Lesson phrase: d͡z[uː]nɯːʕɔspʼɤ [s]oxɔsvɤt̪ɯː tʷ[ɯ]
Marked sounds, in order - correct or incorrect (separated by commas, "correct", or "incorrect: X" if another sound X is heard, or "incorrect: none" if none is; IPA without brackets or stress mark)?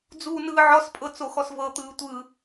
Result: correct, incorrect: t͡s, correct